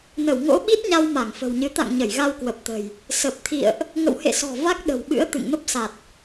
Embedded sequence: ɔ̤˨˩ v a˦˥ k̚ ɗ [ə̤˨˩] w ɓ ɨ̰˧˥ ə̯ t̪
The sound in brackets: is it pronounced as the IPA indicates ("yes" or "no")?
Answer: yes